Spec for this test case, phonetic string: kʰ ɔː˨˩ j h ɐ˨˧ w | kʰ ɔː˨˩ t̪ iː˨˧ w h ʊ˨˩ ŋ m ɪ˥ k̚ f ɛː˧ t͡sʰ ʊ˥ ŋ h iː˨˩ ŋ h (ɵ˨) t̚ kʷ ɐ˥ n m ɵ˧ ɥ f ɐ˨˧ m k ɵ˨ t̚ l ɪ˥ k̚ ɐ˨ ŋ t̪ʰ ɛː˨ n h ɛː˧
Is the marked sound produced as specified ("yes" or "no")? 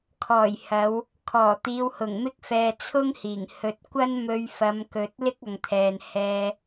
yes